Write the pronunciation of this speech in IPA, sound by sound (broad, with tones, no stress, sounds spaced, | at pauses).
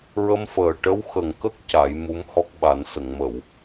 ɹ ə˧ m f əː˨˩ ʈ ə˧˥ w x ə˨˩ ŋ k ə˦˥ k̚ c a˨˩˦ j m u˧˥ m h ɔ˦˥ k̚ ɓ a˨˩˦ n s ə˨˩˨ ŋ m ə˨˩˨ w